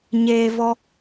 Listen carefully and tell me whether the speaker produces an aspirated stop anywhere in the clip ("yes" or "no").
no